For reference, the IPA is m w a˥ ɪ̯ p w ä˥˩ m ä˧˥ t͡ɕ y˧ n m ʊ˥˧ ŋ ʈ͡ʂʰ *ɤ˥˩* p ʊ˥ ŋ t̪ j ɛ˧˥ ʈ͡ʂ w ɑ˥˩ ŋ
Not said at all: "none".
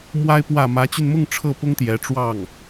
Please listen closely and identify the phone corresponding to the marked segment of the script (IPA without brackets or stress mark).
ɤ˥˩